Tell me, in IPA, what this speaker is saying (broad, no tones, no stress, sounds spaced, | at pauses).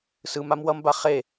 s ɯ m a m w ʌ m b a χ e